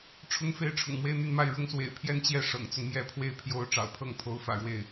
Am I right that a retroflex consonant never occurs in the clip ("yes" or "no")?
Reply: no